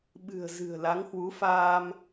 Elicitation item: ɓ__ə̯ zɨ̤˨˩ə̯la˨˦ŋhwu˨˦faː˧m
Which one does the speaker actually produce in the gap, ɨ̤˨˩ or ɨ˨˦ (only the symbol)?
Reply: ɨ̤˨˩